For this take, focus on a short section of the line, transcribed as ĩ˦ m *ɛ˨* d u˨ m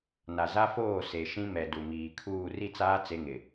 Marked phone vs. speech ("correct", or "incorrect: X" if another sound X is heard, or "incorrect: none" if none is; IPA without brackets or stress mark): correct